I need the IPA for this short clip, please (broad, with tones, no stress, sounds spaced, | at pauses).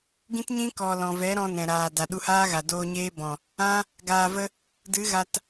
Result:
ɡ ĩ˦ t ɲ ĩ˦ k ɔ˨ l ɔ̃˨ v ɛ˨˦ ɾ ɔ̃˧ n ɛ̃˨ ɾ aː˨ d a˨ ɗ u˧ h aː˦ ɣ a˨ d oː˧ ɲ eː˦ b ɔ̃˨ | ã˦ | ɡ aː˨ v ə˧ | d ɨ˨˦ ɣ a˧ t